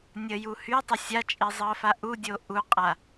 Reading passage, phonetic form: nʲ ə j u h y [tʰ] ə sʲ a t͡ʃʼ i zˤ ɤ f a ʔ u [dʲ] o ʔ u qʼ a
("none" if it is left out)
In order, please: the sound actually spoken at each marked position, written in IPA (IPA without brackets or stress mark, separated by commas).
tˤ, dʲ